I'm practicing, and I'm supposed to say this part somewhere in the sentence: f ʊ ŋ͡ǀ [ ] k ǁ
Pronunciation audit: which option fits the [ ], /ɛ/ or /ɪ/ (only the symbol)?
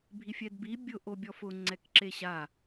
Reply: ɛ